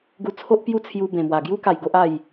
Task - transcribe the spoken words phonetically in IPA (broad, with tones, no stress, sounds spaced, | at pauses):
ɡ u˧ t͡sʰ o˦ ʔ p j u˥˧ t͡sʰ j u˧ b ẽ˨˩ m w a˨˩ ɡ j u˦ k a˨˩ j ɡ o˦ ʔ a˥˧ j